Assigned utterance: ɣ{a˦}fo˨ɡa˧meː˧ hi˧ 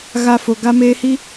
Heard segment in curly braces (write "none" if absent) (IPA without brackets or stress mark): a˧